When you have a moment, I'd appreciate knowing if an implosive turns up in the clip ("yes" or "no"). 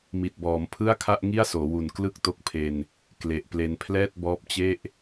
no